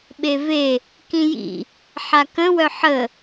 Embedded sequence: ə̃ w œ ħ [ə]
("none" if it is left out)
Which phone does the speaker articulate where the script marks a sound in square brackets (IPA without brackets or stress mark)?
ə